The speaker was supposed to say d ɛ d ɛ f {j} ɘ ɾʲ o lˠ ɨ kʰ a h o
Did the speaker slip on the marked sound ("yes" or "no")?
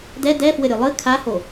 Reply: yes